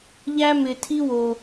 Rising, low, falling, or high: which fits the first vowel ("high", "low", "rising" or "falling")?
high